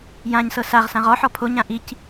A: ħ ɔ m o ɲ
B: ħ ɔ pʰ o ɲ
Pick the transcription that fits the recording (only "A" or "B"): B